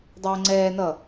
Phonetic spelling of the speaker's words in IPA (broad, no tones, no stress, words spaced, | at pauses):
dˤʌːŋ͡ǀɛːnʌ